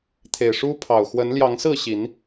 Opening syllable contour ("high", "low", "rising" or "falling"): low